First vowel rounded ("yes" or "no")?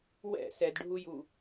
no